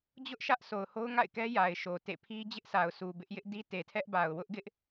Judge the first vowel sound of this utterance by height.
high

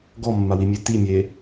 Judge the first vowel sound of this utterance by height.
mid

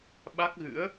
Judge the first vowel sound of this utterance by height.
low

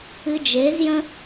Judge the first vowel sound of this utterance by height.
high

